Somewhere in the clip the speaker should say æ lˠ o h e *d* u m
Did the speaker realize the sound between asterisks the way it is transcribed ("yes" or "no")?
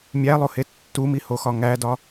no